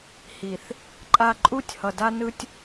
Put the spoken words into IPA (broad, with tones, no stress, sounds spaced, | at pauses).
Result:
h i˨ θ | ǃʼ a˦ ǃʼ u˦ tʲ h ʌ˨ d a˦ n ɯ˦ tʲ